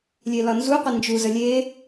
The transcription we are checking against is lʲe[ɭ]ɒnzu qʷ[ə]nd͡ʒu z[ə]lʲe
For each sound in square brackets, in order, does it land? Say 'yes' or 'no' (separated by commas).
no, yes, yes